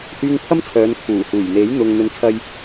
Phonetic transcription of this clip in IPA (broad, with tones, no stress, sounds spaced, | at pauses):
h yː˧ ŋ pʰ ɐ˥ m t͡sʰ œː˨˧ n kʰ uː˨˩ h uː˨˩ j n̪ e˨˥ j n̪ ʊ˨ ŋ n̪ ɵ˧ n t͡sʰ ɐ˥ j